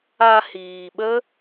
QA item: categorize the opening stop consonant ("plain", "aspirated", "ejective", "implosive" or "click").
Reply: implosive